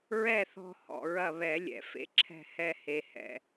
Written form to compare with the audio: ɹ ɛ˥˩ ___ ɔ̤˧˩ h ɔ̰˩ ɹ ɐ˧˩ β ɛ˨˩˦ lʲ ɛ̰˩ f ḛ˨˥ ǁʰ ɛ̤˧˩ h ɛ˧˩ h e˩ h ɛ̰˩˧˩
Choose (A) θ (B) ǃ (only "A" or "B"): A